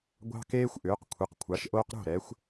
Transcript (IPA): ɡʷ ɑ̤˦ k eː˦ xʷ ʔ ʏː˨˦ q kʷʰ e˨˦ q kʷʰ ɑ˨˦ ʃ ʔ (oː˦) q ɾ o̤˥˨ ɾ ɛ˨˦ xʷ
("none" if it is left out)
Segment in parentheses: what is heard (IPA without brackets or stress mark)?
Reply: oː˦